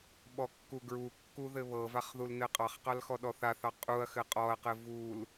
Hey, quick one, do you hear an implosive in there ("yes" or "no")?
yes